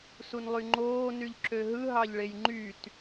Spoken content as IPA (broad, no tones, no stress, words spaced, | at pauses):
sunlˠyŋ͡ǃoː nyʎǁøɦɯ ɦɑʎɭejŋ͡ǃyt